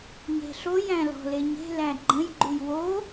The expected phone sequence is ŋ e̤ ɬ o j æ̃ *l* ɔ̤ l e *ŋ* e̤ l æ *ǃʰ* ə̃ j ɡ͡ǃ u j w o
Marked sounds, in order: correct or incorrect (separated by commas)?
correct, incorrect, incorrect